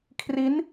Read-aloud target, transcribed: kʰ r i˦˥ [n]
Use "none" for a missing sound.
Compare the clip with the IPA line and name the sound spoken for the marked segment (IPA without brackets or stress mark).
n